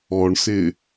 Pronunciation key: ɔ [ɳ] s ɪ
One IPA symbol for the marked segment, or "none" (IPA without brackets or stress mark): ɳ